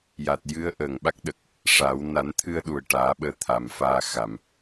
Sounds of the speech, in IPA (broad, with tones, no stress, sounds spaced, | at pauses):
j a˨˩ t̚ j ɨ˧˥ ə̯ ʔ əː˨˩ ŋ ɓ a˦˥ k̚ ɗ ə˨˩ k̚ | ʂ a˨˩˦ w n a˨˩˦ n t̪ʰ ɨ˧ ə̯ ɗ u˨˩ ə̯ ʈ aː˨˩˦ ɓ əː˧ t̪ʰ a˨˩ m f aː˧ x a˨˩˨ m